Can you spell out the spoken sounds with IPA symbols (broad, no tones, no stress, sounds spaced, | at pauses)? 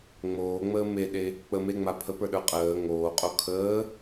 ŋ͡m oː ŋ͡m əː m e ɗ e | k͡p ə m e ŋ͡m a pʰ ə p ə˞ ɗ ə˞ qʼ əː ŋ oː qʼ o kʰ əː